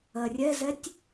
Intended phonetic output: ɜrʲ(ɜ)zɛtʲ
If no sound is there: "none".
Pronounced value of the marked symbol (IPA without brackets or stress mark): ɛ